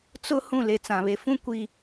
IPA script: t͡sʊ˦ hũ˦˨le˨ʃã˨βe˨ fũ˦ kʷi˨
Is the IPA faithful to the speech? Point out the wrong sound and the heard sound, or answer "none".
ʃ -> t͡s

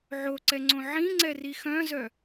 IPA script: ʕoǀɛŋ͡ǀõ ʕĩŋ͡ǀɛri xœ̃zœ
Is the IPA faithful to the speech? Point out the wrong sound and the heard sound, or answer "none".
none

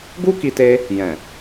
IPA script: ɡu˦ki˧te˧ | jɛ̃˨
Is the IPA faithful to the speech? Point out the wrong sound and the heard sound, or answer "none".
none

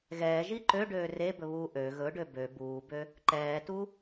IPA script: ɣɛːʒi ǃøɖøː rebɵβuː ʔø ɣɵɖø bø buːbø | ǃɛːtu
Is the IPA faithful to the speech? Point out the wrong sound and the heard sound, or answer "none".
none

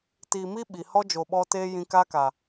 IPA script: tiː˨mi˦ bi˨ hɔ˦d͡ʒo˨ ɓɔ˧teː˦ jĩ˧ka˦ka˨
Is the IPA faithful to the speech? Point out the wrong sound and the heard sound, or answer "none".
b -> ɓ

